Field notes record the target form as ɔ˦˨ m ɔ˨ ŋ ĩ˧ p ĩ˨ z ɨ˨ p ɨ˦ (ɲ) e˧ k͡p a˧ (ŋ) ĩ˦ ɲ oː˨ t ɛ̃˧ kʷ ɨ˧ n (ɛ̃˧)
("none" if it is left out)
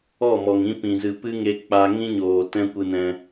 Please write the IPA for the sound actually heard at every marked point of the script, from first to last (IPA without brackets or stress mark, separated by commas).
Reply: ŋ, ŋ, ɛ̃˧